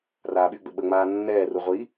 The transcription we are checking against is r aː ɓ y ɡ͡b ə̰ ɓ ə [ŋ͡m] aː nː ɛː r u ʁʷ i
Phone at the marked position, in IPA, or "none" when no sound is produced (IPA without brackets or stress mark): ŋ͡m